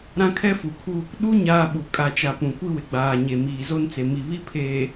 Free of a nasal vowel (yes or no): no